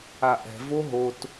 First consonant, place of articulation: glottal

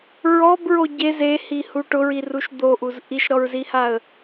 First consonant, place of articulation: alveolar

